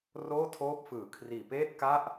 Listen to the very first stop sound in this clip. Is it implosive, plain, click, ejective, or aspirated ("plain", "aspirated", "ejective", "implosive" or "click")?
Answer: aspirated